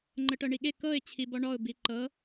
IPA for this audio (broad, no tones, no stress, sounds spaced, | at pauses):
ŋ͡ǃ ə ʈ ɤ ɳ i ɠ e k ɤ ɪ̯ t͡ɕʰ i b ɔ ɳ ɔ ʊ̯ b i ǃ ɤ